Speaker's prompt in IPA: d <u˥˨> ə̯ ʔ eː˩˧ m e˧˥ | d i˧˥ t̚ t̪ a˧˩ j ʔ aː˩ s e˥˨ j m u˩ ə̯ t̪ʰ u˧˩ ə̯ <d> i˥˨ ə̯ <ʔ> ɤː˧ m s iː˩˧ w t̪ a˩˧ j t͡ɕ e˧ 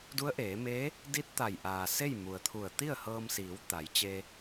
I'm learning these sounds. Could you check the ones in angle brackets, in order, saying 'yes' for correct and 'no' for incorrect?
no, no, no

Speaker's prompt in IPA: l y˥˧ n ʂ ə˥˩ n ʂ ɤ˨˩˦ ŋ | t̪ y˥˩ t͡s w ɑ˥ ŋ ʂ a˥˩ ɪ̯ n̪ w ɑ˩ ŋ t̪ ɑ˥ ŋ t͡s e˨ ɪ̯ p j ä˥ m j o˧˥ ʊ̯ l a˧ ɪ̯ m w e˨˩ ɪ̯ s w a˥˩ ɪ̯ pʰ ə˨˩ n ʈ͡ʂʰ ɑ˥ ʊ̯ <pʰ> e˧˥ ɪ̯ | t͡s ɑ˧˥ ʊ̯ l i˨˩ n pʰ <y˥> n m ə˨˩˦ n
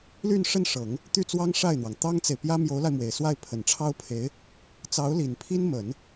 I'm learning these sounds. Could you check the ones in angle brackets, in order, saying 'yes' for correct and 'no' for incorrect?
yes, no

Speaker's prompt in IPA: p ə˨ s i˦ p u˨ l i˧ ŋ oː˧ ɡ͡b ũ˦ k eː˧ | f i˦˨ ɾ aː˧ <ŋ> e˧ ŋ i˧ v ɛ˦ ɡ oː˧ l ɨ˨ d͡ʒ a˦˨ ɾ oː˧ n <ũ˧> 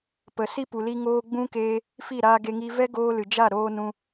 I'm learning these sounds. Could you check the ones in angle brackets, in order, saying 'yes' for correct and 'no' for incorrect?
no, yes

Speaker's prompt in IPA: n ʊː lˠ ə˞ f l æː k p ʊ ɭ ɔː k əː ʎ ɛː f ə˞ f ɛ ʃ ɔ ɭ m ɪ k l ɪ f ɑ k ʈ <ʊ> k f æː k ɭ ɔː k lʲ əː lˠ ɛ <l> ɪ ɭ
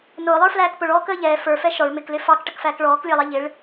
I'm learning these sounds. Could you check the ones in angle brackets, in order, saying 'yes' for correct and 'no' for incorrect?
no, no

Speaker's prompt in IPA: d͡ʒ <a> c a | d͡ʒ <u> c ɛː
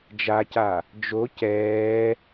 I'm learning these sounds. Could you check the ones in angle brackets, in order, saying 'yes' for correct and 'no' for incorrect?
yes, no

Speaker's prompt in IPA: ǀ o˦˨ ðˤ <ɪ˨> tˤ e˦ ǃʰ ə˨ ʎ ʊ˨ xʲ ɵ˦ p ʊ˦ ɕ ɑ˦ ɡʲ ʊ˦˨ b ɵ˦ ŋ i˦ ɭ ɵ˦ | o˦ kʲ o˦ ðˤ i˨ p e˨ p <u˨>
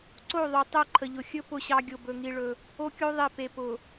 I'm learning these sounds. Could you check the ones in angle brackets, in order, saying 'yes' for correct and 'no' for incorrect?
no, no

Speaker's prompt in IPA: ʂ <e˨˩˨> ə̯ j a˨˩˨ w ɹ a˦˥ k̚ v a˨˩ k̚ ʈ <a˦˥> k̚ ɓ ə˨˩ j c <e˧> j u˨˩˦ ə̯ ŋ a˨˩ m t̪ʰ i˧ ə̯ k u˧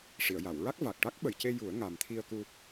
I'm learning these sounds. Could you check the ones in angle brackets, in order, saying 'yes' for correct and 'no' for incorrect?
no, yes, yes

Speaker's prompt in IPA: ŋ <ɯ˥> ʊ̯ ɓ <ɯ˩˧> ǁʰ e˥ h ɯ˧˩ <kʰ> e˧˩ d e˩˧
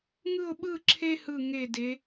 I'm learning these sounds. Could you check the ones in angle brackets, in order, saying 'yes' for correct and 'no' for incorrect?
no, no, no

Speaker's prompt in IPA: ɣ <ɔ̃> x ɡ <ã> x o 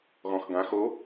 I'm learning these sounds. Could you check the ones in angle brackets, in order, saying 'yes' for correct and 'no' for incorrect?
yes, yes

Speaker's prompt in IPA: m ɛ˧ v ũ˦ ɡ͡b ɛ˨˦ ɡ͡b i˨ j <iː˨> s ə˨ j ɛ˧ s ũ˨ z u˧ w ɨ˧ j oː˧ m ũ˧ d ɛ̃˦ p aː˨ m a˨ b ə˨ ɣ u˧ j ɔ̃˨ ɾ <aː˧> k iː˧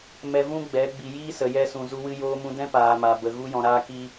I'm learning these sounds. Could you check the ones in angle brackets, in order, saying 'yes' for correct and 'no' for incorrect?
no, yes

